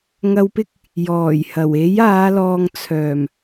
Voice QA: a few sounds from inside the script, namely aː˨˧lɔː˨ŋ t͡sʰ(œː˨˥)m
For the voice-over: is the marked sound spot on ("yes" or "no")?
no